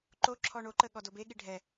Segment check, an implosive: present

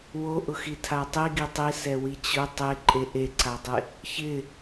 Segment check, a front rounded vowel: absent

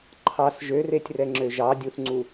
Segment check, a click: present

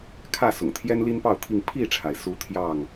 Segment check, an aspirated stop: present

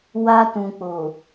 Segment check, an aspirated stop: absent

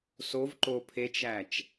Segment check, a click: present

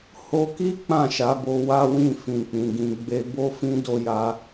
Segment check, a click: absent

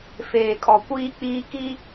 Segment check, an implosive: absent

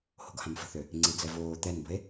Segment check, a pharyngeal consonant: absent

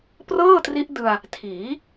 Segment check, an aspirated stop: present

